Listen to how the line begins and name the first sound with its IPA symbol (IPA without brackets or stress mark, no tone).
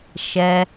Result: ʃ